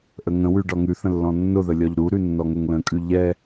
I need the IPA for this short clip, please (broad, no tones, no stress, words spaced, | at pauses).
ʔəŋə̃wʉ ɖɒŋʉθə̃ lːɔ̃nːʊðə lʲɒʎɾuɾʉ nːɔŋʊŋlə̃kʼʉ ʎɛ